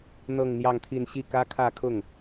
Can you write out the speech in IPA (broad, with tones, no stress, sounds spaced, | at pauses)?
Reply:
n̪ ɤ˥˧ ŋ n̪ j ɑ˥˧ ŋ t̪ʰ i˥˧ n ɕ i˥˩ k ä˥ kʰ ä˥˧ kʰ ʊ˥˩ ŋ